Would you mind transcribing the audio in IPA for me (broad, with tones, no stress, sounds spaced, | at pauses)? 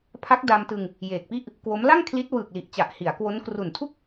pʰ a˦˥ k̚ d a˧ m t ɯ˧ ŋ | j eː˨˩ k̚ p i˥˩ ʔ | k w o˦˥ m l a˥˩ ŋ kʰ l i˦˥ t̚ w ɯː˨˩ k̚ l i˨˩ ʔ t͡ɕ a˨˩ ʔ h i˩˦ a̯ k w o˦˥ n k r u˨˩ n tʰ u˥˩ k̚